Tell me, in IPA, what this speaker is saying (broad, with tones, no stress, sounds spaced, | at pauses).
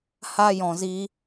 h a˦ j ɔ̃˧ z i˦